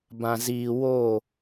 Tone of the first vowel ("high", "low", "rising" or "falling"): low